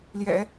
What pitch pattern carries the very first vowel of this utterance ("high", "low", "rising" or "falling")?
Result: low